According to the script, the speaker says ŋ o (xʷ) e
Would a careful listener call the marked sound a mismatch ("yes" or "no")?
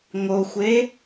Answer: no